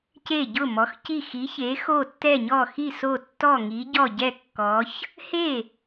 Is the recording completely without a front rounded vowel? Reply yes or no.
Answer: yes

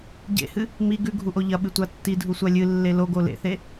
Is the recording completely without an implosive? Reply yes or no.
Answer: no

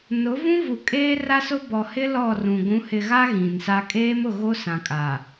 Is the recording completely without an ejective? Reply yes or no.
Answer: no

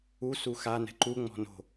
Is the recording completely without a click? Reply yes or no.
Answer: no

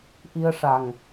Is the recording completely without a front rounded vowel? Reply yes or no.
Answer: yes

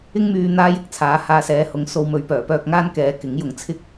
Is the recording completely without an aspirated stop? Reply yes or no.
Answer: no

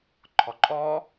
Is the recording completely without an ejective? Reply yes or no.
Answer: no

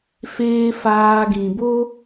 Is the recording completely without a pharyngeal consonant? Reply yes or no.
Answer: yes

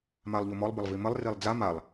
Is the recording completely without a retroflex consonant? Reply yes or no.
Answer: yes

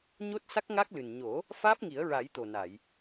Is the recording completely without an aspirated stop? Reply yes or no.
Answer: yes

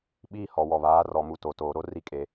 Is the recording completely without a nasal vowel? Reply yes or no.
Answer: yes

